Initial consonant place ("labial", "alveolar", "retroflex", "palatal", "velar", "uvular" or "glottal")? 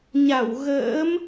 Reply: palatal